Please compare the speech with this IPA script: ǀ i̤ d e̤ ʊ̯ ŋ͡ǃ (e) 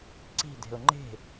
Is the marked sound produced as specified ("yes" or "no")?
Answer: no